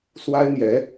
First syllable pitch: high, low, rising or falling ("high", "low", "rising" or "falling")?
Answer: high